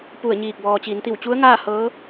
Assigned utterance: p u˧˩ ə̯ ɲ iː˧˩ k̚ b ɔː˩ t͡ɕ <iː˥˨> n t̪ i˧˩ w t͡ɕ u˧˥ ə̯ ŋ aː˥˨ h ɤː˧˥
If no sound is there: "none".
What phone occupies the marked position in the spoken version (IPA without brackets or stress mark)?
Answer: iː˩˧